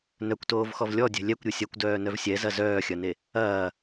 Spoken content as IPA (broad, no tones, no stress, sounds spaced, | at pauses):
n œ kʷ t oː v x ɔ v lʲ ɔ dʲ ɛ̤ lʲ ɛ kʷ ɾʲ e sʲ ɐ kʷ d œː n œ v sʲ ɛ z ɐ z œː xʲ ɐ n e | ɐː